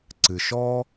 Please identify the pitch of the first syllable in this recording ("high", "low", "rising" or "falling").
low